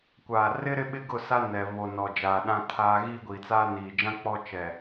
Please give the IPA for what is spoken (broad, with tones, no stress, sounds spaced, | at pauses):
kʷ aː˨ r ɪ˦ ɾ ɪ˦ ɓ ɪ˦ ɡ ʊ˦˨ s a˦ n ɛ˨ β o˨ n ɔ˨ d͡ʒ aː˨ ɗ ã˦ tʰ aː˦ ɣ iː˦ ɡʷ i˨ t͡s aː˦ n iː˨ d͡ʒ ã˦ k͡p ɔ˦ t͡ʃ ɛ˨